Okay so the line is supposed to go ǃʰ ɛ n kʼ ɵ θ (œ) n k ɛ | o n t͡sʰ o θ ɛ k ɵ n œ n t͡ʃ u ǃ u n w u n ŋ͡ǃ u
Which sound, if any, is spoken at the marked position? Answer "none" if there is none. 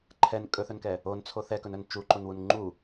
ɵ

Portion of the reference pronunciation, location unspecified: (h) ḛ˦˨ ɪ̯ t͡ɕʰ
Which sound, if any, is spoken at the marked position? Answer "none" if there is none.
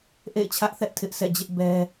ʔ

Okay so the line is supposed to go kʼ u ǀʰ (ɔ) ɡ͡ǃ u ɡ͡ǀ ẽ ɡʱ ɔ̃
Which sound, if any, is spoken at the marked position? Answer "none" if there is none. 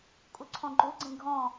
ɔ̃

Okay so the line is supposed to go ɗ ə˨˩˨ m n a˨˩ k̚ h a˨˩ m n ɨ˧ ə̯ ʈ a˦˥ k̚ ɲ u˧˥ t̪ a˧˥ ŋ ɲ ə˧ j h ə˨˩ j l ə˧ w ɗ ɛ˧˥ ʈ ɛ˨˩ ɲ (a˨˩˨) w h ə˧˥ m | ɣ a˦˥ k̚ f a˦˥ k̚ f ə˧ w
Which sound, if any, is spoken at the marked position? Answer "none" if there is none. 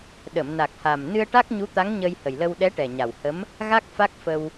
a˨˩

